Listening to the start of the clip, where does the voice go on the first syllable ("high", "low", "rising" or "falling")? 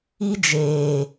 high